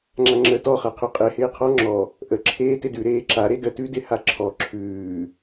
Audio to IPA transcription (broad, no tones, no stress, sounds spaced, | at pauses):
ŋ͡ǁ a ŋ͡ǁ əː t ɔ χ a qʰ ʉ qʼ e h ɪː qʰ ɔ ŋ͡ǁ ɔ | ʔ ə ǁʰ eː t ɪ d ʉ ɾ eː ǁ a ɾ e d ə t ʉ d ɪ h a ǁʰ ɔ ǁʰ ʉː